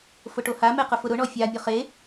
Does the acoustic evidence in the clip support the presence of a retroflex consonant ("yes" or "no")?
yes